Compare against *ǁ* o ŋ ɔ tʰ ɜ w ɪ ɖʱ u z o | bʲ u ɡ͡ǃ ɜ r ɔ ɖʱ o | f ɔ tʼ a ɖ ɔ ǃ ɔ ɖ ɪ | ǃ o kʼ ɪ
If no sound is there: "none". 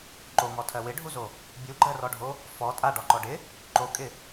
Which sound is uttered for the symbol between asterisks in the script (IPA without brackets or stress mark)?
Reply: ǃ